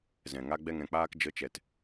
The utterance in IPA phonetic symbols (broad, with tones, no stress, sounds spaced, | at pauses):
z ɛ̃˨ ŋ a˧ ɡ͡b ɛ˧ ŋ ɛ̃˨ k͡p aː˧ k d͡ʒ ə˨˦ t͡ʃ ɛ˨ t